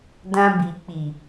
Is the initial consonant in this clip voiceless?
no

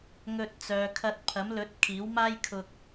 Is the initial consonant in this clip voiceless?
no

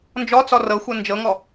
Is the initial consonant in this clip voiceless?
no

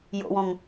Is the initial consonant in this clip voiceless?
no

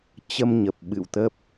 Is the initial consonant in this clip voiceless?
yes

